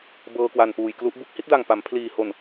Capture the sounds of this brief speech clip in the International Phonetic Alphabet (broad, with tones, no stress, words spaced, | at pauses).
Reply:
bɤː˧kwa˨˩npuː˨˩jklu˦˥ʔ bu˦˥k̚hi˥˩t̚da˨˩ŋ pa˩˦mpʰliː˨˩ ho˨˩n